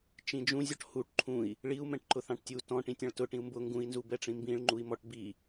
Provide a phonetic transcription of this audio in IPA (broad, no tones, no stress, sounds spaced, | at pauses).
t͡ʃ ĩ d͡ʒ ũ zʲ ɔ ʈ h u ʈ ǃʰ ũ i̯ | ɭ i u̯ m ɛ̃ ʈ ǃ ʊ θ ɑ̃ ʈ tʲ u t ɔ̃ ʈ ĩ tʲ ɑ̃ ɭ t ʊ ʈ ĩ u̯ m b ʊ ŋ ɡ ũ i̯ n z u b ɛ ʈ͡ʂ ĩ m b ĩ ɭ ŋ͡ǃ u i̯ m ɔ ʈ b i